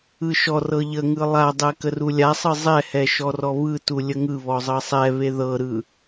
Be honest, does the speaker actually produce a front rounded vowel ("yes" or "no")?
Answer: no